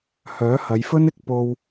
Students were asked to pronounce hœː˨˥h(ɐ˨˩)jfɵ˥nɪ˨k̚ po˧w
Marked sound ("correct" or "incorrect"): incorrect